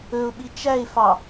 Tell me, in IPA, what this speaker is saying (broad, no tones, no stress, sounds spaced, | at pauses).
ɵ ʊ̯ ɓ i t͡ʃ æ ɪ̯ f ɑ